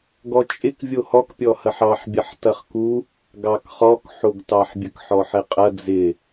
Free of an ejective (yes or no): no